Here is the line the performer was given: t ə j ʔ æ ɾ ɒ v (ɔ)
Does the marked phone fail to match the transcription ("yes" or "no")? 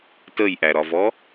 no